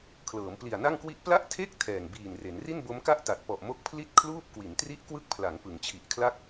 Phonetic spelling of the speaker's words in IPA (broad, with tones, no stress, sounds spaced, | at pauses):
kʰ l ɤː˩˦ m p l i˨˩ a̯ n a˥˩ ŋ k w i˦˥ ʔ p l a˥˩ ʔ tʰ e˥˩ k̚ tʰ ɛː˨˩ ŋ b iː˨˩ n r e˩˦ n r i˥˩ n b o˦˥ m k a˥˩ ʔ t a˨˩ t̚ p ɔ˨˩ ʔ m o˦˥ k̚ pʰ l i˥˩ t̚ kʰ l uː˥˩ p̚ k w i˩˦ n t r i˦˥ ʔ k w ɯ˦˥ k̚ pʰ l a˩˦ ŋ p ɯ˩˦ ŋ t͡ɕʰ i˨˩ ʔ kʰ l a˥˩ k̚